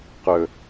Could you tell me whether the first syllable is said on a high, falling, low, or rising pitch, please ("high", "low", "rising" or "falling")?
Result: low